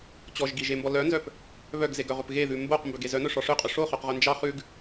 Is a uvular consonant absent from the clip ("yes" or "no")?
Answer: no